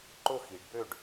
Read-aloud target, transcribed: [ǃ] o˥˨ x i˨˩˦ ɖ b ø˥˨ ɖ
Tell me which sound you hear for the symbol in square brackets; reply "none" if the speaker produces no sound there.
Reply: ǃ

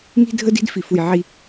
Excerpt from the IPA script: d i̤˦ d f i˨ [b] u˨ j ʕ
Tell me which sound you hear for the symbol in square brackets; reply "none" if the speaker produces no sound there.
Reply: f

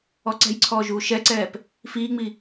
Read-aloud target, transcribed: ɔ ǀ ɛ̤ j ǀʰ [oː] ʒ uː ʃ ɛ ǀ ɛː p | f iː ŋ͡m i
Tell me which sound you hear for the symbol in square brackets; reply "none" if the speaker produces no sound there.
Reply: ɔː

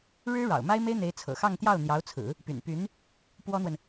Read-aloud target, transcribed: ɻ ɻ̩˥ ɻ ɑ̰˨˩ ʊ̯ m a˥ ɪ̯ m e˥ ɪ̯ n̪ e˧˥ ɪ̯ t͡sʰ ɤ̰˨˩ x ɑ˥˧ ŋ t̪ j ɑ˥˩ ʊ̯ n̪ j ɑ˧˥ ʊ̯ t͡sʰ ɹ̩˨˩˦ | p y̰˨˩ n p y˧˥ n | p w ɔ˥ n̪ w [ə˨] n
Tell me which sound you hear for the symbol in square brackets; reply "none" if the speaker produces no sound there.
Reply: ə˨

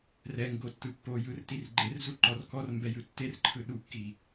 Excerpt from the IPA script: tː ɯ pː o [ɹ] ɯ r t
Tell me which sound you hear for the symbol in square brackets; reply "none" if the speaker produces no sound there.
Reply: j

